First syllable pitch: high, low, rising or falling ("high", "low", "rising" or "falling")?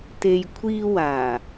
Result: low